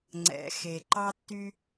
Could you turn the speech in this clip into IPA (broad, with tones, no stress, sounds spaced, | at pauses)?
ŋ͡ǀ ɛ̰˩ x e˩ ǃ ɑ˥ tː y˥